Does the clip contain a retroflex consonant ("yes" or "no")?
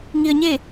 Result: no